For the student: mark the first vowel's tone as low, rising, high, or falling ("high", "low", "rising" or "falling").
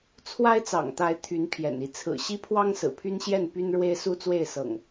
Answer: high